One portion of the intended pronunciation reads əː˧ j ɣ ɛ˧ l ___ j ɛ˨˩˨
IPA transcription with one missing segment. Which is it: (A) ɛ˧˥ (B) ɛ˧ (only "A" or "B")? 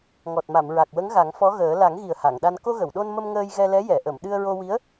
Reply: A